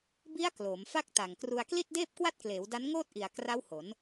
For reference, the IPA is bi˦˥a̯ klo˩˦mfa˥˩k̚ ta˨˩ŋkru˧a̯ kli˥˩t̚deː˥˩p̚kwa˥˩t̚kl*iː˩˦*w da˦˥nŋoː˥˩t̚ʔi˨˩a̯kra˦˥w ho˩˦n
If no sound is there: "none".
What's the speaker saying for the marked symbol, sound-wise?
eː˩˦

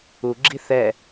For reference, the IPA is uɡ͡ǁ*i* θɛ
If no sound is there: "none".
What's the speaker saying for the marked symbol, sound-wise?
i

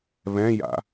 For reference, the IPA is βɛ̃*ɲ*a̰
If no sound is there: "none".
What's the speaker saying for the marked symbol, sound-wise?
j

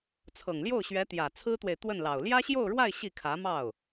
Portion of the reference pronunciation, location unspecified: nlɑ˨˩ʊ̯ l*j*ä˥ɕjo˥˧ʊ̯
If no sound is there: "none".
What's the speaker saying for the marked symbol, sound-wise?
j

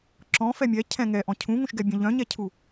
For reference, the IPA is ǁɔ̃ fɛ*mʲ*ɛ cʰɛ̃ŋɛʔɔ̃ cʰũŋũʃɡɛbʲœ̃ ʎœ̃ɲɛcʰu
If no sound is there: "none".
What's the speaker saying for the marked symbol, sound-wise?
mʲ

